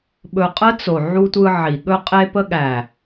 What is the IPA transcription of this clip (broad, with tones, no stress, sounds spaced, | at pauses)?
ɓ ɵ˧ qʼ ə˦ t͡s o˨ ʕ u˧ tʷ ɯ˧ ʕ i˨ ɠ ɵ˧ qʼ e˧ p ə˧ ɠ æ˨